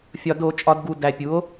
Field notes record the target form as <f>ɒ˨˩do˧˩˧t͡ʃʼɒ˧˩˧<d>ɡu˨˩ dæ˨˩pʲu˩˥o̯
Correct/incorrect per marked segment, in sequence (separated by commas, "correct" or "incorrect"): incorrect, correct